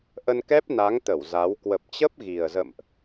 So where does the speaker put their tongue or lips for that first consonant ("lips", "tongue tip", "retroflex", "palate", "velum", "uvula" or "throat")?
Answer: throat